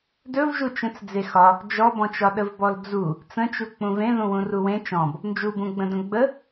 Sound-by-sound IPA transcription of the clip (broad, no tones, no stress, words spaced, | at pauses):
dɵvʒu t͡ʃə̃t͡s d͡zexɒ | d͡ʒɔbɔ̃t͡ʃɒ ɗəvbɔld͡zu | t͡sə̃t͡ʃu k͡pũvẽðũwũ ruwẽ t͡ʃɔ̃b | nd͡ʒubũɡ͡bə̃ də̃ɡ͡bə